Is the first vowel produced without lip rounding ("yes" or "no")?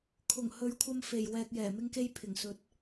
no